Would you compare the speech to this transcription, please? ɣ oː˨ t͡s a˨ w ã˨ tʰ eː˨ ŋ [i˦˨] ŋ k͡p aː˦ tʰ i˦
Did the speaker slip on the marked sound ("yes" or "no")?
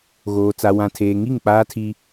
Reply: no